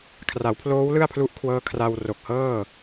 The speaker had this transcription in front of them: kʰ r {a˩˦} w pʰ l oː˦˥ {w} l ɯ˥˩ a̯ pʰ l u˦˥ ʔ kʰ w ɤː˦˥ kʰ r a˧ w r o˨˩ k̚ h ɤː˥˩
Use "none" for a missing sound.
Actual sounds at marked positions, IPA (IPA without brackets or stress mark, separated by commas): a˩˦, w